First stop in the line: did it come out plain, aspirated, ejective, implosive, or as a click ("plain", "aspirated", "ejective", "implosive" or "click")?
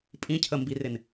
ejective